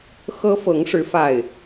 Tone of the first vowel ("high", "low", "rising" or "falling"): high